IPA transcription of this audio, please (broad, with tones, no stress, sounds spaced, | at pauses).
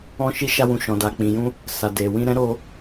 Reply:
ɔ̃˧ ʃ i˧ ʃ a˧ w ũ˨ ʃ ɔ̃˨ d a˨ k͡p ĩ˨ j ũ˧ | s a˨ d e˨ w ĩ˧ ɾ ɛ̃˦ ɾ o˧